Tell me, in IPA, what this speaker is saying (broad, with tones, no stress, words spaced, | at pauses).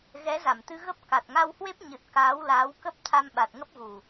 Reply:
ɣɛ˨˦za˧˩mt̪ɨ˧ ɣə˦˥p̚ ka˨˩t̚ŋa˧whwe˦˥p̚ ɲɨ˨˩t̚ kaː˨˦wlaː˨˦wkə˦˥p̚ t̪ʰa˧mɓa˨˩t̚ŋə˦˥p̚ɣu˨˩